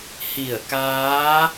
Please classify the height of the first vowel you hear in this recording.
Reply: high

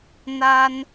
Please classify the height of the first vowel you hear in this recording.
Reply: low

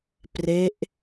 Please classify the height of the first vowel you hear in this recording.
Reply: mid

